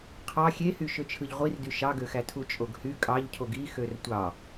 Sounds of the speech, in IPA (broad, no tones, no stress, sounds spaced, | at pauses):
qʰ ɑ xʲ e h y ʃ ø t͡ʃʰ ɯ ʎ ʁʷ i r d y ʃ ɑ ɡ ø x æ tʰ u t͡ʃʼ o ɡ h y kʼ ɑ ʎ cʰ o ɡ i x ø r tʷ ɑ